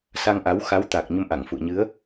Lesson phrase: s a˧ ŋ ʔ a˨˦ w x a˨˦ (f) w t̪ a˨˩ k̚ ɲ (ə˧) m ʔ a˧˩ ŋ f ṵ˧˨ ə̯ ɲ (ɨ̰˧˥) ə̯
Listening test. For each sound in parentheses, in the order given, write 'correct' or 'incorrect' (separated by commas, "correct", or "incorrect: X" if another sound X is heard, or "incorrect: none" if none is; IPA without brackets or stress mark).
incorrect: none, correct, incorrect: ɨ˨˦